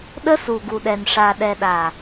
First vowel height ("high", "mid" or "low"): mid